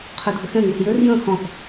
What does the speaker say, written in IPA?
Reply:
qʰ ø dʱ ə x ɛ̃ ŋ u θ j ø r j ə̃ x ɔ̃ θ

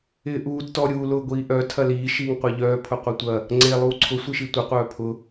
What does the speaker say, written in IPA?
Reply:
ɪː ʔ uː d t ɔ ɾʲ uː l ʊ ɡʷ iː ʔ œ tʰ ɐ l iː ʃ iː ŋ qʷ a ʎ œː pʰ ʊ qʷ i tʷ ɐ | ŋ͡ǀ e lˠ uː ǀʰ ʊ sʷ i ʃ i tʷ ɪ qʷ œː pʰ ʊ

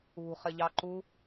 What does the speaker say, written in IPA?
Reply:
ṳ χ ɪ ʎ ɑ ǃ u

